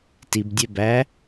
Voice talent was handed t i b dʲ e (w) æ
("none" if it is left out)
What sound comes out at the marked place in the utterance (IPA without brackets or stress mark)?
b